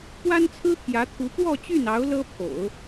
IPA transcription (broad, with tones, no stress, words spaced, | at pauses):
pwa˥nt͡sʰɹ̩˥t̪ʰjä˧˥t̪ʰu˧˥ pwɔ˥˧t͡ɕy˥˩nɑ˧˥ʊ̯ lɤ˥ pʰo̰˨˩˦ʊ̯